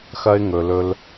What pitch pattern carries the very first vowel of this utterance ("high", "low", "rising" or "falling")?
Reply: high